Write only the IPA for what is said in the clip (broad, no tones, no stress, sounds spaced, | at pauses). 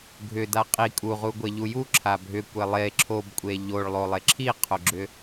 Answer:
ɡʱ ʏ d a qʼ i kʼ u ʁ u ɡʷ e ʎ u j u ǁʰ a bʱ ʏ kʷ e lˠ e ǁʰ o b kʷʼ e ʎ o ɭ lˠ o lˠ e ǁʰ i qʰ o ɡ͡ǁ ʏ